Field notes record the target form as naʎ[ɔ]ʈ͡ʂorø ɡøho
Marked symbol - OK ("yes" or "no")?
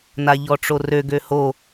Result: yes